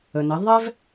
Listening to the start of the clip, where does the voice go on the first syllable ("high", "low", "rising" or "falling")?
low